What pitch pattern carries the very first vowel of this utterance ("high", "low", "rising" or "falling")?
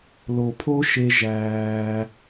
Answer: low